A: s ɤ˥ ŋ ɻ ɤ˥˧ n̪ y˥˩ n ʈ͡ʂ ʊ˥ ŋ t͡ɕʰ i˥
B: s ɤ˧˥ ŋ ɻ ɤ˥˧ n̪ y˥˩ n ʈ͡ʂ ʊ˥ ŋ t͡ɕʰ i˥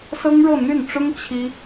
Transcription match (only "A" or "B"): A